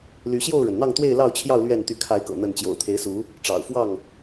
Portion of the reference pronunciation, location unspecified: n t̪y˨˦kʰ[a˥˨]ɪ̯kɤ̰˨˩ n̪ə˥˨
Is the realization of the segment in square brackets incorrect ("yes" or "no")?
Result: yes